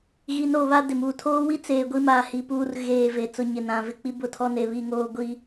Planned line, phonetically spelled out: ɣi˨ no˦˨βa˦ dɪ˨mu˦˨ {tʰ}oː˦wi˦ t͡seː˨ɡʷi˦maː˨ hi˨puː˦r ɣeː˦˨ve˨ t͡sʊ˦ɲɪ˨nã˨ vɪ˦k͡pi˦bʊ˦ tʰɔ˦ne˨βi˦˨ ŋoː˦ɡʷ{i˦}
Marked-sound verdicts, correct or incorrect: correct, correct

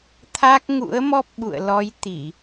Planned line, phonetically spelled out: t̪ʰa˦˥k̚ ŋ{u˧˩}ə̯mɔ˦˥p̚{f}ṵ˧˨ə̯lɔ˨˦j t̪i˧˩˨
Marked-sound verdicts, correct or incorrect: incorrect, incorrect

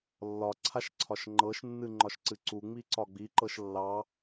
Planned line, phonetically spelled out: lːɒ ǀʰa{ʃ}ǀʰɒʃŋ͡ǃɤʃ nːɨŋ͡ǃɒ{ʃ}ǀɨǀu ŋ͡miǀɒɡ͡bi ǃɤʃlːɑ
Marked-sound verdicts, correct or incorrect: correct, correct

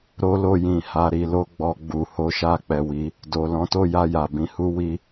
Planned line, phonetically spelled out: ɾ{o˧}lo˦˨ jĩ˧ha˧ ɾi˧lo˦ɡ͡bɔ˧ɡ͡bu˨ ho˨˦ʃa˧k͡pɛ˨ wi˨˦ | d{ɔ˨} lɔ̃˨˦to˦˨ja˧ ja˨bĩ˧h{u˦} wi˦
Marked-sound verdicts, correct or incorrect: incorrect, incorrect, correct

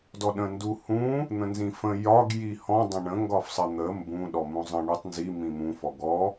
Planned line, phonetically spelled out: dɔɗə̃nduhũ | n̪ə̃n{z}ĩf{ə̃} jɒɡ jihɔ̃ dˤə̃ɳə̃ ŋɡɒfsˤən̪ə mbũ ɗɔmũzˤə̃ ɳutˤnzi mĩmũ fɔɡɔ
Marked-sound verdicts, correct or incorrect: correct, correct

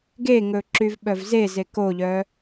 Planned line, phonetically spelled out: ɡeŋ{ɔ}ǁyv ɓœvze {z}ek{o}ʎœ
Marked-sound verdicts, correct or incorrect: incorrect, correct, correct

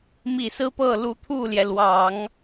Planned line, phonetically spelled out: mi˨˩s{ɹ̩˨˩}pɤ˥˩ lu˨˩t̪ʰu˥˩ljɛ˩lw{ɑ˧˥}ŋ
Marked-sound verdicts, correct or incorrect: incorrect, incorrect

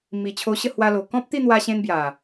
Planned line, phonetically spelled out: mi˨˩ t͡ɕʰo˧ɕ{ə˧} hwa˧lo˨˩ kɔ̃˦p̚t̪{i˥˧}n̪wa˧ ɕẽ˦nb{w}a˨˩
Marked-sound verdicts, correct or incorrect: incorrect, correct, incorrect

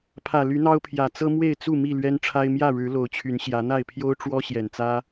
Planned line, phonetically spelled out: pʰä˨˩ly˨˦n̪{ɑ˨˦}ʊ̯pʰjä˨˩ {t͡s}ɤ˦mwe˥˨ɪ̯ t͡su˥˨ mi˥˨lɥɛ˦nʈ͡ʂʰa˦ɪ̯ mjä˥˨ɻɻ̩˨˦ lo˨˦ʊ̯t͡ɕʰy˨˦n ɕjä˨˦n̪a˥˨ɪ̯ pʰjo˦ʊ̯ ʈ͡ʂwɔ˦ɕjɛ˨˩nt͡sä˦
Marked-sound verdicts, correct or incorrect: incorrect, correct

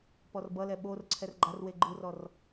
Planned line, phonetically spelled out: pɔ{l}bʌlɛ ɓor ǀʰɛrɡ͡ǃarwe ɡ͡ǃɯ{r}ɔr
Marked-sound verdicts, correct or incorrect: incorrect, correct

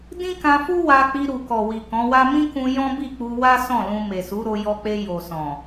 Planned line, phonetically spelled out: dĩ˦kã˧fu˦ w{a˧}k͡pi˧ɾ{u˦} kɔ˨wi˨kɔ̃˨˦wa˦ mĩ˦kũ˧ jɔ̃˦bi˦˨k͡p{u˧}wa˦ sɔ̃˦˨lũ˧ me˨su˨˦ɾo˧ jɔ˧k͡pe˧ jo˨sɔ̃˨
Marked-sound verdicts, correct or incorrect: correct, incorrect, correct

